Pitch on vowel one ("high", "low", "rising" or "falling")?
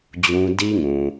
high